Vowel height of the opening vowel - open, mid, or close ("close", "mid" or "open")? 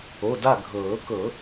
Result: mid